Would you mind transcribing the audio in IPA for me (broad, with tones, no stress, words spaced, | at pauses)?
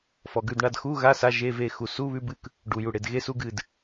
fɔ˨ɡʉ˦˨d ɳa˦˨dxu˧˥˧ɣa˧˥˧ sa˧˥˧ʒe˧˥˧ve˦˨ xu˨su˧˥˧βʉ˧˥˧bɨ˧˥˧k | ɖu˨ju˨ɽe˨d ɣe˧˥˧su˧˥˧ɡɨ˦˨d